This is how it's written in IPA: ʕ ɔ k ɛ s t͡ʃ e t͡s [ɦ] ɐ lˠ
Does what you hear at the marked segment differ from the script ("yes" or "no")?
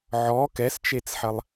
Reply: yes